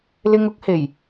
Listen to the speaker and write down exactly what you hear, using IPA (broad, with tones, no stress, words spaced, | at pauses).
lɪ˧ŋʊ˨˥k̚he˨˩j